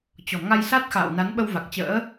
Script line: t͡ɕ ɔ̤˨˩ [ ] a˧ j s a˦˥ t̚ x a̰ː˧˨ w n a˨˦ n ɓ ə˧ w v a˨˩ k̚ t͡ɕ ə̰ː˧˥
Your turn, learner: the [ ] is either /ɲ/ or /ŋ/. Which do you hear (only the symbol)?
ŋ